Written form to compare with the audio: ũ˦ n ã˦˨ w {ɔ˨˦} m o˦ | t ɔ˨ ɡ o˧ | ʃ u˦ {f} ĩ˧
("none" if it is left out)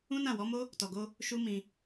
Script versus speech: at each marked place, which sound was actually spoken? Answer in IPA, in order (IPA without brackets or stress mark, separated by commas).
ɔ˨˦, m